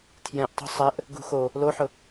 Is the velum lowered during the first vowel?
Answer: yes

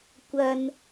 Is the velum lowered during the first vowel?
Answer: no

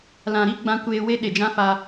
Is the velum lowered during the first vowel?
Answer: yes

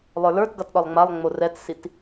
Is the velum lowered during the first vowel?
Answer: no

